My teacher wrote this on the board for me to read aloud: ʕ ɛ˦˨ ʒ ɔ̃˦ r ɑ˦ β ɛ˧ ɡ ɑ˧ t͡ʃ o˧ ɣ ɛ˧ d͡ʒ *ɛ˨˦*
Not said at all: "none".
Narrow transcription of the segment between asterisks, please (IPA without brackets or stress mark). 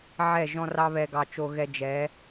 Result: ɛ˨˦